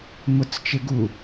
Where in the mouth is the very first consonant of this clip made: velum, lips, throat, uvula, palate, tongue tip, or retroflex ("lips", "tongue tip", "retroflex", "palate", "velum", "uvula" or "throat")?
lips